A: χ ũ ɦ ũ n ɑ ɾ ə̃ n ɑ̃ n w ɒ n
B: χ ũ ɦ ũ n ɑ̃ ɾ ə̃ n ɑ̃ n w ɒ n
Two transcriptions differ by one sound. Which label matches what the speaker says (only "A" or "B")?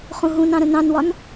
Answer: B